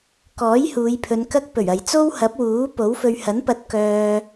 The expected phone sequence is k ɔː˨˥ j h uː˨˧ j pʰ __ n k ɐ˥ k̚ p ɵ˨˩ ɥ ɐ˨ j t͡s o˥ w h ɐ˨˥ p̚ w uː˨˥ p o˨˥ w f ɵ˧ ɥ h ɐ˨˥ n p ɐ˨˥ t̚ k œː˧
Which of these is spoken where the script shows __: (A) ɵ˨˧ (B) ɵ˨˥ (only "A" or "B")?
A